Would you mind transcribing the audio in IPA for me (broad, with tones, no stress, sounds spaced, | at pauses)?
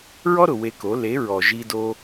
ɹ ɔ˦ ɾ ʊ˨ w e˧ k o˨˦ l e˨˦ ɹ ɔ˨ ʒ i˧ d o˧